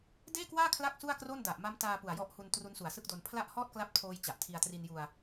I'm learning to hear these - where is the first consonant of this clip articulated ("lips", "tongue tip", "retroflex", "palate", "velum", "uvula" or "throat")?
tongue tip